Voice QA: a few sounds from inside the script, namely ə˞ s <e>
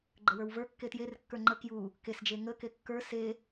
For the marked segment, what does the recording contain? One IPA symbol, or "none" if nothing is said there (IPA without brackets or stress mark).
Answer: e